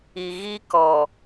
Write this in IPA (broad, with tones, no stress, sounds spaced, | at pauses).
i˨ ɣ i˦ k ɔ˨